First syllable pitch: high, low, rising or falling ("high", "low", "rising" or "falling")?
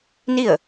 falling